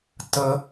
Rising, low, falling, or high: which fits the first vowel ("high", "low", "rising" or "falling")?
high